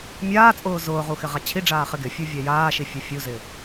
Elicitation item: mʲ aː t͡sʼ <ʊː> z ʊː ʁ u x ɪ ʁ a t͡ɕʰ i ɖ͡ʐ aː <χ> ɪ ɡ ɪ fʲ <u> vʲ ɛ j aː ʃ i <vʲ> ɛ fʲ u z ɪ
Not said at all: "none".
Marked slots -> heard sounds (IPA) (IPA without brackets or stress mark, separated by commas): ʊː, χ, u, fʲ